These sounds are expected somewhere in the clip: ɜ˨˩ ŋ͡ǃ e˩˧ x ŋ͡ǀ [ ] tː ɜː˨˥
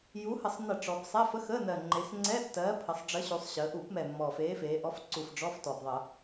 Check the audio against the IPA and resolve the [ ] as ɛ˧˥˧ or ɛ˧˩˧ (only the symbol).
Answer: ɛ˧˥˧